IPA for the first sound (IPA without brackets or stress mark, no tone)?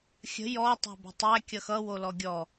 xʲ